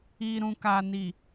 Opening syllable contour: low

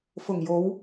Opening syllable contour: low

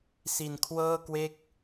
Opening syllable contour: low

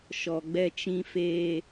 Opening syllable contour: low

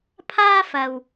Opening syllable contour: high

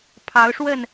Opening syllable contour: rising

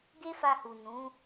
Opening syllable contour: high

